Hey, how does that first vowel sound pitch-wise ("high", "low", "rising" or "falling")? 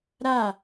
falling